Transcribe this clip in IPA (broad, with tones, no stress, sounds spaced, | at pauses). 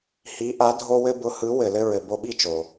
h i˩˥ ʔ a˩˥ dʱ o˧ w ɘ˧ b ʊ˩˥ h ɯ˩˥ w ɘ˩ l ɘ˧ ɹ ɘ˩ b o˧ ɓ i˥˩ t͡ʃ o˩